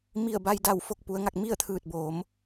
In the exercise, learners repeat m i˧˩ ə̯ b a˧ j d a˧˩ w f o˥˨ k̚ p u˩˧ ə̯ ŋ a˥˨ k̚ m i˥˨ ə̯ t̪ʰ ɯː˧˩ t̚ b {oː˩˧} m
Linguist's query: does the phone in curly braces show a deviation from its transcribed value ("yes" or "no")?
no